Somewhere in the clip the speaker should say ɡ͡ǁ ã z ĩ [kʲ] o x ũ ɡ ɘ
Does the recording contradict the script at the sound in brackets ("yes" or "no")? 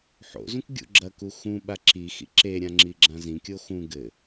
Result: no